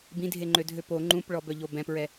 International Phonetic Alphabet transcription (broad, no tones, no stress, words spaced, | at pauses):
bĩdʱeŋ͡ǃødʱø po ŋ͡ǃũpɭɔbœʎo bɛ̃pɹɛ